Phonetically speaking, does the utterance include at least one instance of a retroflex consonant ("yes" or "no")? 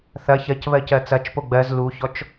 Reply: no